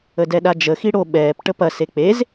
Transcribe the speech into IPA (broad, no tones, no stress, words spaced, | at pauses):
ədɛɗad͡ʒə xiɽo ɓɛːp ʈəpɐ sek͡pez